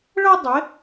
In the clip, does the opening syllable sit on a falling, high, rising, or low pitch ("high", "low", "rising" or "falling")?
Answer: high